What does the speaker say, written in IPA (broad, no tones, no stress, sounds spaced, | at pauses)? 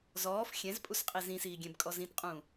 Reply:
z ɔː f xʲ ɛ̃ z pʼ u s qʼ i z ĩ s iː ɡʲ ɛ̃ b kʼ ɔ z ĩ t qʼ ũː